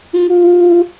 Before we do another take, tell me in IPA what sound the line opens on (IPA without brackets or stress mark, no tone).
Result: ŋ